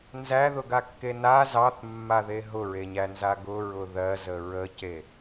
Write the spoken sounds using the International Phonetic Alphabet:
n z æ ð ʊ ɡ a kː e n a z ɑ θ mː a ð e ɦ ʊ ɹ e ɲ æ n z a ɡ ʊ ɹ ʊ ð ɜ z ə ɹ ə c e

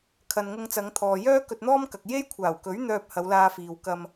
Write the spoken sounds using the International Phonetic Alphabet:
kʰ ɐ˨ n ŋ ʊ˧ ŋ t͡s ɐ˨˧ ŋ t̪ʰ ɔː˨ j œː˥ k ɵ˧ t̚ n̪ ɔː˥ m k ɐ˨ k̚ j e˥ j kʷʰ aː˨˩ w k ɵ˨˥ ɥ n̪ œː˧ p̚ h ɐ˨˧ w l aː˧ f iː˨ w k ɐ˧ m

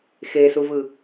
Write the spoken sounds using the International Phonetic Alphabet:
x e s u v ɯ

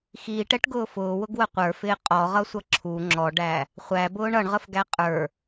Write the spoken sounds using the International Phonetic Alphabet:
x iː ʈ ɛ ʈ ɡ ʊː f ʊː w ʊ ɡ w ə qʷ ə˞ f ɪː qʼ ɔ ʁ ʌ sʷ ʌ ǁʰ u ŋ͡ǁ ɔ ɖ æ | χʷ æ b ʊː ɳ ʌ ɳ ʁ ə f ɡ æ qʼ ə˞

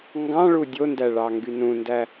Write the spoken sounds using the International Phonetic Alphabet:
ŋ ɡ ɑ̃ ɭ u dʲ o n d æ ɭ ɑ ŋ ɡ y n ũ n d æ

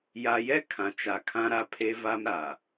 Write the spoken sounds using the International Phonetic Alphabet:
j a˨ j ɛ˦ kʰ ã˨ t͡ʃ a˨ kʰ ã˦ ɾ a˦ pʰ e˦ v a˦ m ɾ a˨

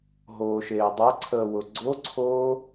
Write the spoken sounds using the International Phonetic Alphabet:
ɦ oː ʃ eː dˤ ɛ ǀʰ əː w ʊ ɡ͡ǀ o ǀʰ oː

